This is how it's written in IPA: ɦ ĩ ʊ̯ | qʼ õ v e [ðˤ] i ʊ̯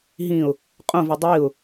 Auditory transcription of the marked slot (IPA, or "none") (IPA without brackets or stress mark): dˤ